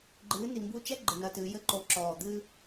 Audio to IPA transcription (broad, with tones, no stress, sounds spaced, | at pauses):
ɡ͡ǃ ɨː˨˦ n i˨ m b u˧ t͡ʃ ɛ˦ ɡ͡ǃ ɨ˨ n ɐ˧ t ɨː˨˦ j ɘ˧ ǃ o˨˦ ǁ ɔː˨ d̪ ɨ˦